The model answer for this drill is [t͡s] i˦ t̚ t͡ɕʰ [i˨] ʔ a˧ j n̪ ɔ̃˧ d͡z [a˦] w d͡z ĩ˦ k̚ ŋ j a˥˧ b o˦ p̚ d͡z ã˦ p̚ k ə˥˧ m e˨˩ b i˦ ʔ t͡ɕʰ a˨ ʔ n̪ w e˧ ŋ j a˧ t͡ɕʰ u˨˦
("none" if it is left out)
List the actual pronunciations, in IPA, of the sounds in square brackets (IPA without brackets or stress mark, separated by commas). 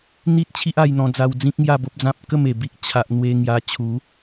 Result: n̪, i˦, a˧